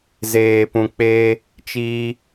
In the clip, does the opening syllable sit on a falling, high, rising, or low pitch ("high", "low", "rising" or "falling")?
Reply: high